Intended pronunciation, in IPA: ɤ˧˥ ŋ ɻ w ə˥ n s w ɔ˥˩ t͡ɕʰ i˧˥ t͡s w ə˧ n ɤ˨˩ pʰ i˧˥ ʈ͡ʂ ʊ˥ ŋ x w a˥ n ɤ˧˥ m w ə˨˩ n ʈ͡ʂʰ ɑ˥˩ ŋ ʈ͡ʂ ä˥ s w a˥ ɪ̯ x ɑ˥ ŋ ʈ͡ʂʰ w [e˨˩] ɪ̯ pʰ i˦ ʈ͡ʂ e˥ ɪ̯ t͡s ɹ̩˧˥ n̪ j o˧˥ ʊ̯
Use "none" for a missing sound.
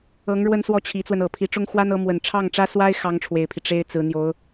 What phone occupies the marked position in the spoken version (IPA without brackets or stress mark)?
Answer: e˨˩